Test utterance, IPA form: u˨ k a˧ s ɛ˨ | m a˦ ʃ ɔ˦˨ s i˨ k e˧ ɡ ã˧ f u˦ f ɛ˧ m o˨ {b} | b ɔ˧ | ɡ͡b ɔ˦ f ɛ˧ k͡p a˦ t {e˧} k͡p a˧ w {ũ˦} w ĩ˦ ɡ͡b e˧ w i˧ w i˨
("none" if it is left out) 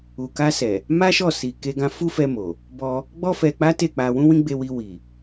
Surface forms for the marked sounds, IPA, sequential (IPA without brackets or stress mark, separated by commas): none, e˦˨, ũ˦